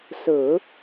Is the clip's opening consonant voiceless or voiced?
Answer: voiceless